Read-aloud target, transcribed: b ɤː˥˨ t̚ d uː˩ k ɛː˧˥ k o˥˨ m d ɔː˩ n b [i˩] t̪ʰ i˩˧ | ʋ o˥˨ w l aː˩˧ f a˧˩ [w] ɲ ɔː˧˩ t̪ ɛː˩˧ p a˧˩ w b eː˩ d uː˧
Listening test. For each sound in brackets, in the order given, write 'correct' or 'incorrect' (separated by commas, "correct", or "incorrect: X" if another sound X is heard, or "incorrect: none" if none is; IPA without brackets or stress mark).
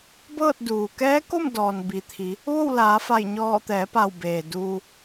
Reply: correct, incorrect: j